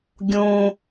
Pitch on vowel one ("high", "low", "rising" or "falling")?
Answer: low